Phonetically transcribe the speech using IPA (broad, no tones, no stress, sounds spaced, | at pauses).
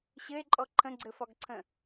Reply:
ɕ ɘ e̯ ǃʼ ɔ ǃʰ ə̃ ɡ͡ǀ ɘ f ɒ ɡ ǀʰ ə̃